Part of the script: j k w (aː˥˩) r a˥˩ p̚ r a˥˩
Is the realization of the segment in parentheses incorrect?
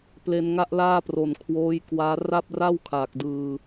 yes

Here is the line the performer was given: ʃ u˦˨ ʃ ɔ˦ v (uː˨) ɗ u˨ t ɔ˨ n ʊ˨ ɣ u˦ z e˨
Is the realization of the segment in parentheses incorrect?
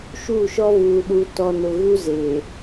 no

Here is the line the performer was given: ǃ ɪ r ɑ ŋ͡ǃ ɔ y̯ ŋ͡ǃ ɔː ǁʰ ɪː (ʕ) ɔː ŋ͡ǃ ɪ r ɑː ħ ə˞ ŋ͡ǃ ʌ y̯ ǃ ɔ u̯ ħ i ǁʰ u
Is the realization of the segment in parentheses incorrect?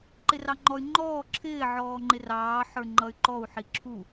no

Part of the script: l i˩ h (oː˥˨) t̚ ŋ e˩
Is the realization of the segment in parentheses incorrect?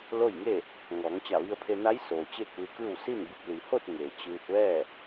yes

